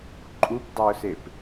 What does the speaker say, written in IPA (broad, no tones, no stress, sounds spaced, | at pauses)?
ǃʼ u p dˤ ø ʊ̯ s e p